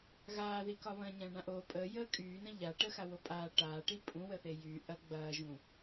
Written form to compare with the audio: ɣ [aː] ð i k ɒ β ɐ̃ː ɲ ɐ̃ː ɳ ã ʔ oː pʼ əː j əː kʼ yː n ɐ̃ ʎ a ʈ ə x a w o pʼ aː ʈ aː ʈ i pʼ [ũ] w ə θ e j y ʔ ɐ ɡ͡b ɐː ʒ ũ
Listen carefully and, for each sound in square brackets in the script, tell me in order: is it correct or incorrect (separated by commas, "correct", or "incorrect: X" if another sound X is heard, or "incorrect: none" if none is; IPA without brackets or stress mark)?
correct, correct